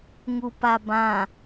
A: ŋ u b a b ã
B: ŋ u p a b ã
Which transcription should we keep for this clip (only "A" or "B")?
B